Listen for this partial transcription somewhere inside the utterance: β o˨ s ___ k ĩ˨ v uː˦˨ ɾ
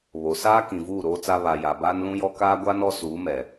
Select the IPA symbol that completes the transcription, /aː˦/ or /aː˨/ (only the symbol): aː˦